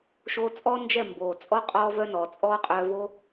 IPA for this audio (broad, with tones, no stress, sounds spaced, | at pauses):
ʃ oː˧ t͡sʼ ɔ˦ n d͡ʒ ɛ˦˨ m b oː˨ t͡sʼ ɔ˦ qʼ ɔː˧ v œ˧ n ɔ˨ t͡sʼ ɔː˦ qʼ œː˧ v o˦